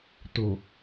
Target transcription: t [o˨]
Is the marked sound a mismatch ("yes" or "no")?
no